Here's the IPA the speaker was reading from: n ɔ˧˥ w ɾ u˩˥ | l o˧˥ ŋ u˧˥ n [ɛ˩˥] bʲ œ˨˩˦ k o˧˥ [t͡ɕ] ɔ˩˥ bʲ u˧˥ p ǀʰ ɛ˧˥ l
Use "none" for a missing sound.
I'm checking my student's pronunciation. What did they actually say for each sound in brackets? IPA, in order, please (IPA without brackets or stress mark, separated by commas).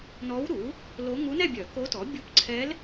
ɛ˥˧, t